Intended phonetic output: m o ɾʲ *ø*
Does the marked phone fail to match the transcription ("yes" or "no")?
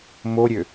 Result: no